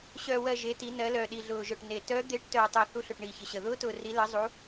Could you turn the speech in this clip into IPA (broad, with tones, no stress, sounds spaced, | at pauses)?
ɕ œː˧ w ɜ˧ ʒ e˦˥ t i˦˥ n ɜ˦˥ l œː˧ ɗ i˧ ɮ ʊː˧ ʒ œ˧ ʈ n e˧ t œː˦˥ d̪ e˦˥ ʈ t œː˧ tˤ œ˧ θ u˦˥ ɬ ʊ˧ ʈ ɳ iː˧ ç ə˧ ɕ ə˧ ð ʊː˦˥ t ʊː˧ r i˦˥ l ɜ˦˥ zˤ u˦˥